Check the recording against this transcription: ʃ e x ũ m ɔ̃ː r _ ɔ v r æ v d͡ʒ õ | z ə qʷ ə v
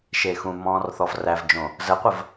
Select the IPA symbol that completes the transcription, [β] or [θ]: θ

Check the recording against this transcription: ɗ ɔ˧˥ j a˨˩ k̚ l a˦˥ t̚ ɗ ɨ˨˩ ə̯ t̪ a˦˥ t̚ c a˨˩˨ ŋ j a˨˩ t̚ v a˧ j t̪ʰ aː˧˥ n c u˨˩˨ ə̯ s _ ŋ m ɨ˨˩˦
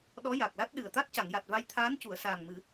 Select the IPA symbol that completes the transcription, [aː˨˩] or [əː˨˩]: aː˨˩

